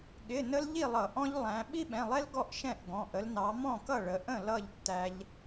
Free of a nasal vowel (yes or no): no